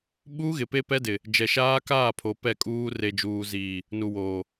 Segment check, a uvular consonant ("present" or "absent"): absent